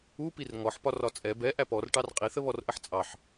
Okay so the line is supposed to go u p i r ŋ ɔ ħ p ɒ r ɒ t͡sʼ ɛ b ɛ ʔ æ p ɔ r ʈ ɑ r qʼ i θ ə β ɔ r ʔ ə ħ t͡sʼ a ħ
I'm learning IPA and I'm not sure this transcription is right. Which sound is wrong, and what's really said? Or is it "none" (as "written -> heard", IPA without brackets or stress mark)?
a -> ɑ